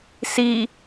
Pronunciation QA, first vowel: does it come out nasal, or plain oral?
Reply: oral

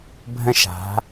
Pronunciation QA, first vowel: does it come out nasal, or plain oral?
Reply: nasal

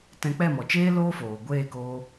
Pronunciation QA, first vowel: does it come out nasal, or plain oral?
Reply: nasal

